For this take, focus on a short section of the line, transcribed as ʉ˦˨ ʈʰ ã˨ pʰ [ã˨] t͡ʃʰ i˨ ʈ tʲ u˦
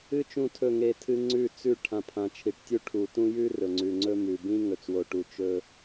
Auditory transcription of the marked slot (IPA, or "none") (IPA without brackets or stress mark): ã˨